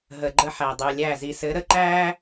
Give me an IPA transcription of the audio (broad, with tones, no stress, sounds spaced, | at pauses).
ɦ ə˨ ɡ͡ǃ ə˦ ħ æ˨ dˤ ʉ˨ lʲ æ˦˨ z i˨ s ɘ˨˦ ɾ ə˨ ǃ æ˦